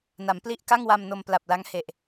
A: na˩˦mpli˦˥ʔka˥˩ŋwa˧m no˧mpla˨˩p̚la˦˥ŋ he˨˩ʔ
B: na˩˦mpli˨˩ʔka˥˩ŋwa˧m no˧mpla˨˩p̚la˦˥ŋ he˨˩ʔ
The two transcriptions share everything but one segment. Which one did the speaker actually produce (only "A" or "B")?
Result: A